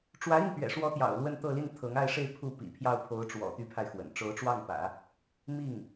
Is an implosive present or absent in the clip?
absent